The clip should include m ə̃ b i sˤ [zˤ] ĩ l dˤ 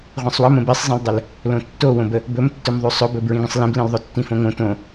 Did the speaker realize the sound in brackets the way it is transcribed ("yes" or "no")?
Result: yes